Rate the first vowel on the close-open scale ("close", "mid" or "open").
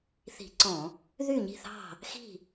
close